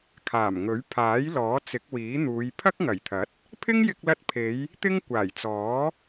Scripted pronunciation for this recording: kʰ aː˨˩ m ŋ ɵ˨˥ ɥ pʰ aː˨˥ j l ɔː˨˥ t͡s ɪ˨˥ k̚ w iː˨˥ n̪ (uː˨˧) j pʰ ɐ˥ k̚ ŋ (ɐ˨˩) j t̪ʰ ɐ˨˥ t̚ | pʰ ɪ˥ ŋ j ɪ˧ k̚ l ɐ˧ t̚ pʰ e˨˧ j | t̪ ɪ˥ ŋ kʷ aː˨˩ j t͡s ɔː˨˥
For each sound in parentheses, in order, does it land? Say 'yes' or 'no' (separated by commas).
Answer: yes, yes